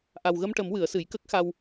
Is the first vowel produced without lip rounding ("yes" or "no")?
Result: yes